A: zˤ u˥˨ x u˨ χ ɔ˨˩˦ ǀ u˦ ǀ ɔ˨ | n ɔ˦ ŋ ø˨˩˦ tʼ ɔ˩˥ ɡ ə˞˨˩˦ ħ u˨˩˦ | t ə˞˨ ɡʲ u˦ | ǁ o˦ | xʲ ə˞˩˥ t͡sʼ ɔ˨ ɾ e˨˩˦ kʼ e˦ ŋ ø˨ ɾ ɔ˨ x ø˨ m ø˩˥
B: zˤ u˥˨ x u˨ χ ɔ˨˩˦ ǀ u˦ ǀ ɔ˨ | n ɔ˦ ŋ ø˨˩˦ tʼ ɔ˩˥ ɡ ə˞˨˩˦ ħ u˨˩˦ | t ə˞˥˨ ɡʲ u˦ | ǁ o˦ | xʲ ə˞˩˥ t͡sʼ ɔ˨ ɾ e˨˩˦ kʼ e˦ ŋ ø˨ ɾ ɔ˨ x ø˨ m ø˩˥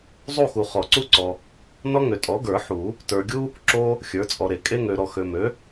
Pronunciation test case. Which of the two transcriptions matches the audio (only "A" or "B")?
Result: A